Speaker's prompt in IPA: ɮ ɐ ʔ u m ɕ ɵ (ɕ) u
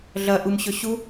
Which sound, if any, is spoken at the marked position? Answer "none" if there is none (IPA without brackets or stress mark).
ɕ